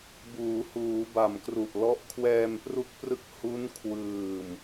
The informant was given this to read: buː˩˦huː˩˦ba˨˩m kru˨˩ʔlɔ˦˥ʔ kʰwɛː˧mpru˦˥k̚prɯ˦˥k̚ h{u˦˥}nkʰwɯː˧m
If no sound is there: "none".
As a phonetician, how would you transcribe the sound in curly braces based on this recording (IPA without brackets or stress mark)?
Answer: u˦˥